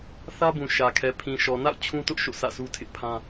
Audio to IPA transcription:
θ ä˦ b ũ˨ ʃ ä˨ kʰ ɛ˨ pʰ ĩ˨ ʃ ɔ˨ n a̰˦˨ ʊ̯ t͡ɕʰ ũ˦ t ʊ˦ ʔ ʃ o̰˦˨ sʰ ä̰˦˨ s u˦ tʰ ɪ˦ ʔ pʰ ã˦

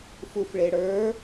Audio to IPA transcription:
f u f ɭ e ɽ ə˞

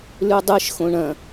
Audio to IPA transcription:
l ʉ dˤ ɨ ʃ x õ ɳ ɐ̃

